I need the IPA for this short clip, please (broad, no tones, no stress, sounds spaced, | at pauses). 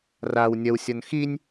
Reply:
r a w nʲ ʌ w sʲ ɔ n x i nʲ